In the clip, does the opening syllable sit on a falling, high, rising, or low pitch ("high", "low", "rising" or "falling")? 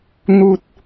low